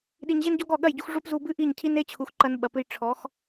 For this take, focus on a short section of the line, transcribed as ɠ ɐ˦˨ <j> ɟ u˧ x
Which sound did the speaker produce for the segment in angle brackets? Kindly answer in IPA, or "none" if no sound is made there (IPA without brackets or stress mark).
j